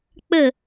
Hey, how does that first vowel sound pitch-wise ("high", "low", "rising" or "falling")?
falling